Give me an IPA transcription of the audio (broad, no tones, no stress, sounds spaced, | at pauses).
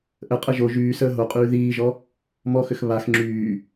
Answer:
ʔ ə qʼ ə ʒ o ʒ yː s əː ɦ o qʼ yː ð iː ʒ ɔ | m ɔ x ʏ x β a x ŋ͡ǁ yː